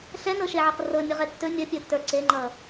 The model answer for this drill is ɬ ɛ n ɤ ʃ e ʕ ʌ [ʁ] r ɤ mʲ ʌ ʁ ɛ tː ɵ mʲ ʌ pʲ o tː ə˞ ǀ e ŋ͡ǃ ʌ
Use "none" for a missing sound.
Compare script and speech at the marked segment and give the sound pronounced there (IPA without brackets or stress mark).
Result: q